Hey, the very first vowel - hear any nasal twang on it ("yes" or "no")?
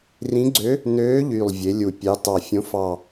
yes